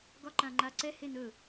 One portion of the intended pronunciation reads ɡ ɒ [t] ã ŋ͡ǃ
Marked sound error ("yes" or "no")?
yes